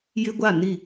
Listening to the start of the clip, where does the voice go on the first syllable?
high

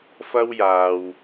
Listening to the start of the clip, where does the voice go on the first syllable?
high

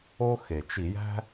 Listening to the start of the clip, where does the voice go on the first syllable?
high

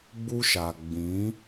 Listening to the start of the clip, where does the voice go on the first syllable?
high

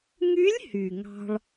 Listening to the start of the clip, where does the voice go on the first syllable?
rising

